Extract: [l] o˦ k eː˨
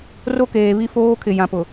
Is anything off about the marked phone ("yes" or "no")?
yes